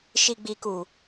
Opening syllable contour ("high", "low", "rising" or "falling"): low